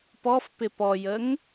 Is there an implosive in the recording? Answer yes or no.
no